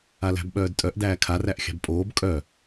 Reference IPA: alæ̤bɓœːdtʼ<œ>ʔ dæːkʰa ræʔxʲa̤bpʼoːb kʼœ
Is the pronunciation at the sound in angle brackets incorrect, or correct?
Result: correct